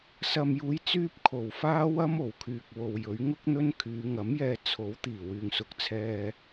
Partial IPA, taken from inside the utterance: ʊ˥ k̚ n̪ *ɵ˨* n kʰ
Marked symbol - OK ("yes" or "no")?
no